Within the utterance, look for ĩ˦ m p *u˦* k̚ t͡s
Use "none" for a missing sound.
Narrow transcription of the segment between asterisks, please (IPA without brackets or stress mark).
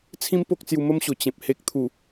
o˦